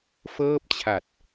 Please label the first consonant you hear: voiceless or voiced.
voiceless